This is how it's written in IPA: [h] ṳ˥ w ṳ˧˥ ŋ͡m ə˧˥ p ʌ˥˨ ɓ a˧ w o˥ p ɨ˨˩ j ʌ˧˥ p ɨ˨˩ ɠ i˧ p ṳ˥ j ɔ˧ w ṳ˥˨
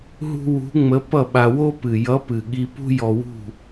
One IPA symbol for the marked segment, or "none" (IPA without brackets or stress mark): ɦ